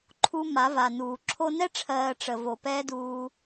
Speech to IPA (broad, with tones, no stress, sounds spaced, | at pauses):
ǃʰ u˧ m a˨˦ v a˨ n uː˨ ǁʰ o˧ n ɛ˦ ʈ͡ʂʰ ɜː˨ ʈ͡ʂ ə˨ v o˨ p ɛː˦ d uː˧